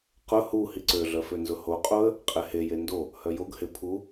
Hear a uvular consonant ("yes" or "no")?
yes